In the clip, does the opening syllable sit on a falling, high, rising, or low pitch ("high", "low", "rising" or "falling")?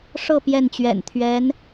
falling